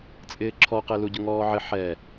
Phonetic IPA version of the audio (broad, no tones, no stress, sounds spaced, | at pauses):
t͡sʼ ɪː ǁʰ ɔ q e l u ɟ ʊ ŋ ɔː ʕ ɪ ħ ɛ